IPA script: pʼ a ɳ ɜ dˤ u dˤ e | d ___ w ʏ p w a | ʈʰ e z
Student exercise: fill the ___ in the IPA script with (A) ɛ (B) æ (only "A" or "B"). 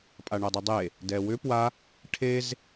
A